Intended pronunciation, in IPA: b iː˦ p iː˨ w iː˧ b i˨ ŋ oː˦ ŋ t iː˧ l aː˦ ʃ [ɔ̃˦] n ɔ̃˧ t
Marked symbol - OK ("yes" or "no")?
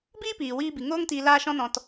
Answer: yes